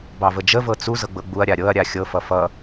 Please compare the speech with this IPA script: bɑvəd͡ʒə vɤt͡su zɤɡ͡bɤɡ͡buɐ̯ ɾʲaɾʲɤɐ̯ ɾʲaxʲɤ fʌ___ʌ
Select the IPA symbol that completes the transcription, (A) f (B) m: A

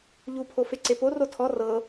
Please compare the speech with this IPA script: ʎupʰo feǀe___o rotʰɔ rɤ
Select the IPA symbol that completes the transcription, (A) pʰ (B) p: B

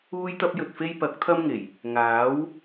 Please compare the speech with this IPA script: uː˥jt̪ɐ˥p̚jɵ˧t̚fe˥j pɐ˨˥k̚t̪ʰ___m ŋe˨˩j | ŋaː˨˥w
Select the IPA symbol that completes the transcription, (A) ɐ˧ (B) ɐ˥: B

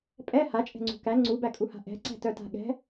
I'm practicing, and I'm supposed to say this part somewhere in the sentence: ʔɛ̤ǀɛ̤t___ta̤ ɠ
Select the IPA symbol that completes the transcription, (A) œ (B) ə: A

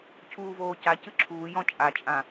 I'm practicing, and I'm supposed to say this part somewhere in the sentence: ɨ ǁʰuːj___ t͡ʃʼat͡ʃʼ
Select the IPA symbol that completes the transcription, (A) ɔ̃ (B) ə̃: A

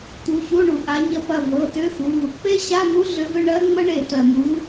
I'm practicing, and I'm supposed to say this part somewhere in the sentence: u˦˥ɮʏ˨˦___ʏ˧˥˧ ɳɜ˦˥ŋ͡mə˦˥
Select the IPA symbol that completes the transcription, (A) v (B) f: A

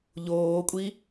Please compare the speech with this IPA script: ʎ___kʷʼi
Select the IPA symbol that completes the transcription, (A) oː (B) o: A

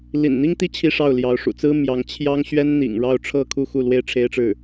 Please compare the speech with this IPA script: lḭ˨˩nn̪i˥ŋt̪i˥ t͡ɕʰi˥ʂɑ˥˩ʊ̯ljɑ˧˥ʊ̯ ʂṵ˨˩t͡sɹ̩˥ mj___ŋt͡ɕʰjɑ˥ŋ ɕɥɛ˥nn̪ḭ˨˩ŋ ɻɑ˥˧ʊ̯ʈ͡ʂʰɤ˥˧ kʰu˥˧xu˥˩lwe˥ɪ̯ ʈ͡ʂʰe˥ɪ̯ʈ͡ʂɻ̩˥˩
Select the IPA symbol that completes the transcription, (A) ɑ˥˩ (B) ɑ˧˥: B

